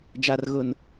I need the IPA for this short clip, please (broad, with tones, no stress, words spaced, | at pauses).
d͡ʒa˨rɣʊ˨n